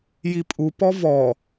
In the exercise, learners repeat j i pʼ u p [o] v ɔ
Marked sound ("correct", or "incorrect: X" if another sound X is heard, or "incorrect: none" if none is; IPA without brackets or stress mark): incorrect: ɔ